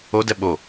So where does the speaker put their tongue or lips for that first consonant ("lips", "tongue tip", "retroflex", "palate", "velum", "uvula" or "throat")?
tongue tip